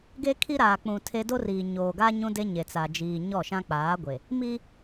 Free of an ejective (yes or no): yes